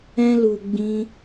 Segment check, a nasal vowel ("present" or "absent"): present